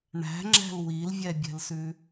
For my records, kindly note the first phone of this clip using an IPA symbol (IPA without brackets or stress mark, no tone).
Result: ɳ